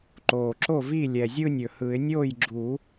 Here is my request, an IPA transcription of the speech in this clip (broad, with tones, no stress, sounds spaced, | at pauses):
ǃ oː˨˩ ǁ o˥˩ v i˥˩ lʲ ɛ˨˩ zʲ ɯ˥˧ nʲ ɵ˨˩ h ɯ˨˩˦ ɪ̯ nʲ oː˥˩ j ɡ͡ǁ u˨˩˦